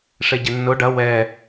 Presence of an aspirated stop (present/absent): absent